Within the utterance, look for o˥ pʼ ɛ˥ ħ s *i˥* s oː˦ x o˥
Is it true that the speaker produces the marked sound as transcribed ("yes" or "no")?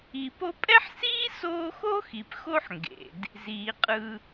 no